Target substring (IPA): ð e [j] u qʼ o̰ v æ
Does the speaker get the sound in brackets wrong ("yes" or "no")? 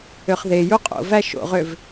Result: no